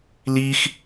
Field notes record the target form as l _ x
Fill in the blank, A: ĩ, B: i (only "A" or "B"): B